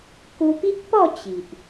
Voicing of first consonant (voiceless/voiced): voiceless